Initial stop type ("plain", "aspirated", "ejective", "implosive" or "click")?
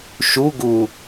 plain